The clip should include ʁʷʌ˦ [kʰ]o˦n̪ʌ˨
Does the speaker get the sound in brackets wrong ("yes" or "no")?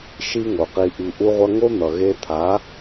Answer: yes